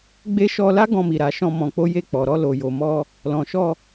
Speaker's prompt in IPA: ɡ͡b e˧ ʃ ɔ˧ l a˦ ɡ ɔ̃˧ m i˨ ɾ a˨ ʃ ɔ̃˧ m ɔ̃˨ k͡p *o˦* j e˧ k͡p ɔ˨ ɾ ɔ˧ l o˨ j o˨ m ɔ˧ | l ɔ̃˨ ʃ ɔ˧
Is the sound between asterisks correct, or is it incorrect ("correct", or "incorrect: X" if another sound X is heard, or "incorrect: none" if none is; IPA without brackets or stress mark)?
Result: incorrect: o˨˦